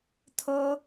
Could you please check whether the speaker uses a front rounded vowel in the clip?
no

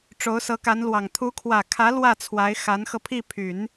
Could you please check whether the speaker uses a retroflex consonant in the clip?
yes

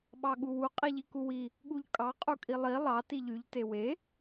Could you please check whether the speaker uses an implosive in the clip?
yes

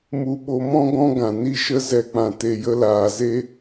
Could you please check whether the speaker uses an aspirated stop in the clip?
no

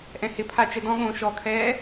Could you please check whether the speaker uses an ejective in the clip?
no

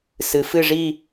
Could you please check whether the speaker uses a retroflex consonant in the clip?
yes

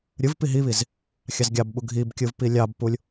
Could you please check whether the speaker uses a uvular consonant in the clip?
no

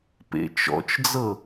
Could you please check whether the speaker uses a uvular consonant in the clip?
no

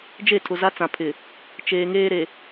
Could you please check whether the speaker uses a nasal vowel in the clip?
yes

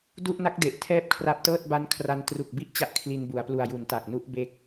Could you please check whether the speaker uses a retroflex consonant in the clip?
no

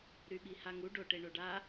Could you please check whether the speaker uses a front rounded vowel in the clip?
yes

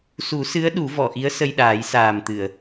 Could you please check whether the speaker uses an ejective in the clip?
no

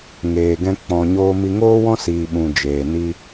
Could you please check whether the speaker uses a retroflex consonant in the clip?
no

